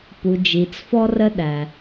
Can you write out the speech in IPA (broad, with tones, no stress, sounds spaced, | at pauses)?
p u˩ d͡ʒ i˩ t͡s f ɔ˧ r ə˧ ɗ æ˩